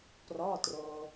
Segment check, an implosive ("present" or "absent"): absent